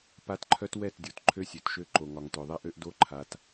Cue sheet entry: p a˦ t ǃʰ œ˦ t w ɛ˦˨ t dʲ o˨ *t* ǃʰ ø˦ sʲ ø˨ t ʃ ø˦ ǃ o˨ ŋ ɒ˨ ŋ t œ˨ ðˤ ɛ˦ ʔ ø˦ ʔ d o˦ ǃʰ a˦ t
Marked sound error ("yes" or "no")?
no